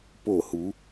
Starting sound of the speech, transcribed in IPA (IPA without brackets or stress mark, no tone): p